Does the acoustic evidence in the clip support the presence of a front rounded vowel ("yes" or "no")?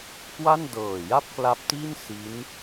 no